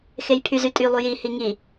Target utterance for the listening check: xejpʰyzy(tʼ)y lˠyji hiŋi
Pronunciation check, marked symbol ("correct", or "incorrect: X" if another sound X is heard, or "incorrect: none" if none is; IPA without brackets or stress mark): correct